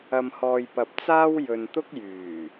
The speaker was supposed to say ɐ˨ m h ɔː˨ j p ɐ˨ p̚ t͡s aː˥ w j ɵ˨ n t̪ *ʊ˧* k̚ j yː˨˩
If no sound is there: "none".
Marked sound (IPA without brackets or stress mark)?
ʊ˥